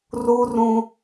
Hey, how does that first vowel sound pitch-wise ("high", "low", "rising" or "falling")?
high